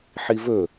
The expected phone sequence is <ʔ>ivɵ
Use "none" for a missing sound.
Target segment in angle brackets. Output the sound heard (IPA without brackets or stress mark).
ħ